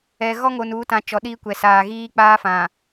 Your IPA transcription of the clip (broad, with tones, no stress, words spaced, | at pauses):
ɛ˨ ɣɔ˦ŋo˨nuː˨˦tã˨ t͡ʃɔ˨˦ɗiː˦kʷɛ˨ saː˨ɣiː˦k͡paː˦fã˨